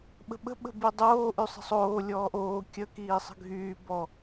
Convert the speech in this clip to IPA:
ɓ ə̤ ɓ ə̤ ɓ ə̤ b i dˤ oː ʔ y sˤ ə̤ sˤ oː lʲ ɔː ʔ oː kʲ ə k iː sˤ ə̤ ɡʱ yː b ɔ

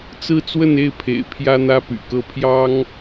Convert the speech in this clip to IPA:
t͡s ɹ̩˥ t͡s w ə˥˧ n e˥˩ ɪ̯ pʰ ḛ˨˩ ɪ̯ pʰ j ä˥ n̪ ä˥ p y̰˨˩ k ɤ˥˩ pʰ j ɑ˥ ŋ

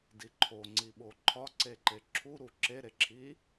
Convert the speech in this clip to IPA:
d i ǃʰ o ŋ͡ǀ i ɓ o ǃʰ ɒ ǀ e ǃ e ǁʰ u ɾ u ǁ e ɾ e ǁʰ i

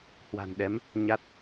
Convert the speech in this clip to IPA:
h w a̤˨˩ n ɗ ɛ˨˦ m | ɲ a˦˥ t̚

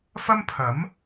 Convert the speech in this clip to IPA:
f ɐ˥ m pʰ ɐ˨˥ m

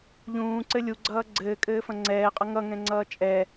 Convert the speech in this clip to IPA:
ʎ ũː ǀ ɘ lʲ u ɡ͡ǀ ʌː ɡ͡ǀ ɘː kʼ ɘː f ɐ̃ ŋ͡ǀ ɛː qʼ ʌ ŋ ʌ ŋ ɛ̃ ŋ͡ǀ ʌː t͡ʃʼ ɛ

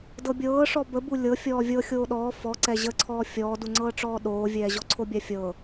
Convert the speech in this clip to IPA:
d ɤ bʲ ɤː ʂ ɔ b ə b u lʲ ɤ fʲ ɔː vʲ ɤ xʲ oː ɗ ɔː f ɔ ǀ ɛ ʑ ə ǀʰ ɔː fʲ ɔː d u ŋ͡ǀ ɤː ʈ͡ʂ ɔː ɗ oː vʲ ɛː ʑ ɔ ǀʰ o bʲ a fʲ ɤ

